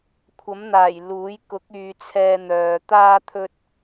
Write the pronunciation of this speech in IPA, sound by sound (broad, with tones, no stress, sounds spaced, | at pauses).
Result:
kʷʰ ɐ˨˥ m n̪ aː˨˩ j l uː˨˥ j k ʊ˨˥ k̚ yː˨ t͡sʰ ɛː˧ n̪ œː˨ t̪ aː˥ t̪ʰ ɵ˥ t̚